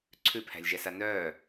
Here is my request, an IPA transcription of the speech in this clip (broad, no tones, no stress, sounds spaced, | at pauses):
ǀʰ ʉ pʰ æ̤ lʲ ʒ ɛ s a n œː